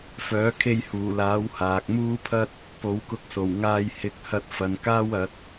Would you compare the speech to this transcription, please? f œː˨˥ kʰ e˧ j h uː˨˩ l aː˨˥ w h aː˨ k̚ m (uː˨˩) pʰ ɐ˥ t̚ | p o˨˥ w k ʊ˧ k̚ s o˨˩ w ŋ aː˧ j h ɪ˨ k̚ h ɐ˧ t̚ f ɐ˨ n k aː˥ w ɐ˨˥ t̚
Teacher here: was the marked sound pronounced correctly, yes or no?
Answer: no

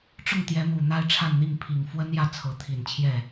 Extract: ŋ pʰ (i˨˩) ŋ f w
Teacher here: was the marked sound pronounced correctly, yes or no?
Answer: yes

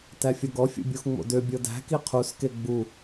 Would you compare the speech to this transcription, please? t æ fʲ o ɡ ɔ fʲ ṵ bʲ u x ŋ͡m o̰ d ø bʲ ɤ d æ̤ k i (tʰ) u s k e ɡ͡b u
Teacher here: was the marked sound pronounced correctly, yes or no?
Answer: no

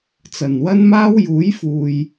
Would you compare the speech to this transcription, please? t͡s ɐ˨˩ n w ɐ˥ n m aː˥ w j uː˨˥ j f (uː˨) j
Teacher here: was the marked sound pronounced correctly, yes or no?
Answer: yes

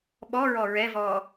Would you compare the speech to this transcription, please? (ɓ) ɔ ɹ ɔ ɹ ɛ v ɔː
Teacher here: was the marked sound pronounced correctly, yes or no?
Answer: yes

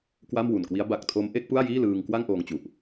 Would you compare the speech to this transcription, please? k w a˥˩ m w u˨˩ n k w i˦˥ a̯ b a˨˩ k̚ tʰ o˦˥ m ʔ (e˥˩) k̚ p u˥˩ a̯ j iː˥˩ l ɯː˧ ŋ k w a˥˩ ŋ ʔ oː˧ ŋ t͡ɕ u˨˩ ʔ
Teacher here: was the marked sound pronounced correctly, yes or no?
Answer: no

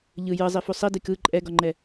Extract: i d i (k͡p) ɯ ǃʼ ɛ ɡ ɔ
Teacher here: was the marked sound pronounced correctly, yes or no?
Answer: no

